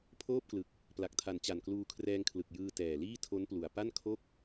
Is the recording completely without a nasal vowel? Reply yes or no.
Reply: yes